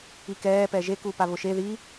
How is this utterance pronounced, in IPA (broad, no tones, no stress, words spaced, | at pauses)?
ikɛː pɛʒe kupaβʊʃe ði